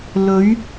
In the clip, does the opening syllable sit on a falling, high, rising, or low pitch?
rising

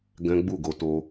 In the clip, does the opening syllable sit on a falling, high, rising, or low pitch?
high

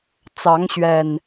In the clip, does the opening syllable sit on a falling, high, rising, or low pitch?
rising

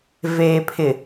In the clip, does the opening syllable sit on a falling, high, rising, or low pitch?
low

